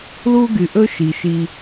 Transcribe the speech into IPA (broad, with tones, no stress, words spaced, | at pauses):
lu˥ ɡy˨ʔɵ˥ʃi˩ʃi˨